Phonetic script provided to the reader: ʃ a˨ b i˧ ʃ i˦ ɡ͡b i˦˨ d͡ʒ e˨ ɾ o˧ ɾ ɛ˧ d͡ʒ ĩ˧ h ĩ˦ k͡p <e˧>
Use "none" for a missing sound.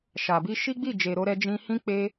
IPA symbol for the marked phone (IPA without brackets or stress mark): e˧